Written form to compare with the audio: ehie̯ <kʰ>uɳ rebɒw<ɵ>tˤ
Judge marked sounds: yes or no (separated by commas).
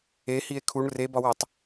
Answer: yes, no